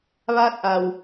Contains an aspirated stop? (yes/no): no